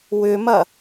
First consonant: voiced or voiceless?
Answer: voiced